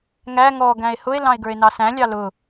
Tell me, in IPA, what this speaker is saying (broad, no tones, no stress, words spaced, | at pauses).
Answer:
ŋæ ŋɔ ɡæ̃e̯hʊe̯ lɑ̃e̯ɡə˞e̯nɑsæ̃ lʲɑlʊ